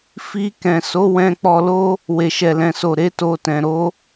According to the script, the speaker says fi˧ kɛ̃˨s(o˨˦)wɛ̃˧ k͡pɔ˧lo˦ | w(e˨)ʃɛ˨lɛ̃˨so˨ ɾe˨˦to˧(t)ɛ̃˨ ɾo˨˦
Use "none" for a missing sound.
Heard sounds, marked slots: o˨˦, e˨, t

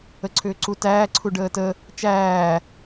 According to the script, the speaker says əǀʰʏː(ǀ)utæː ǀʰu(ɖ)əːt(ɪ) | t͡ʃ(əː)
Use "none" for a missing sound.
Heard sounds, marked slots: ǀ, ɖ, ə, æː

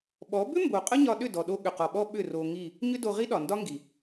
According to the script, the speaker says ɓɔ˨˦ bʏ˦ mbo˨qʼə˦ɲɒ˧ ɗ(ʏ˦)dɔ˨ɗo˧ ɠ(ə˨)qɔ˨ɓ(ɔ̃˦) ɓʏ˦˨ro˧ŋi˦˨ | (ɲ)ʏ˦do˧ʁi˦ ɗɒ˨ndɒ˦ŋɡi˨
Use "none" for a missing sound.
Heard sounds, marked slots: ʏ˦˨, ʏ˨, ɔ˦, ɲ

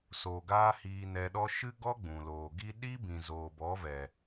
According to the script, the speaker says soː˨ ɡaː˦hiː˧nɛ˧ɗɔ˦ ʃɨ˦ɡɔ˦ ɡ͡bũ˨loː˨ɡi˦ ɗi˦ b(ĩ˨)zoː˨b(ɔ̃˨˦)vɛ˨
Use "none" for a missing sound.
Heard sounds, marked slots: ĩ˨, ɔ˨˦

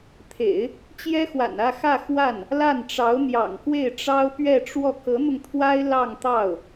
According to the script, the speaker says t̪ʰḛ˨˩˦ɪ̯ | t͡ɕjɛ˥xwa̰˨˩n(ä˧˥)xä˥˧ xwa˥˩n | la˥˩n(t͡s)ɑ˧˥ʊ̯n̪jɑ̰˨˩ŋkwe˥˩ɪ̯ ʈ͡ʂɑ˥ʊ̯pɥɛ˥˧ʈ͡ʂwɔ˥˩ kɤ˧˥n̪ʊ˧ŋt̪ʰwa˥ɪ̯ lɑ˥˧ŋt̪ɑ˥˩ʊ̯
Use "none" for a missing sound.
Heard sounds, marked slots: ä˥˧, ʈ͡ʂ

